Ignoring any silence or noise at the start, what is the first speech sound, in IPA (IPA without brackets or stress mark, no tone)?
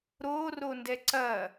ɾ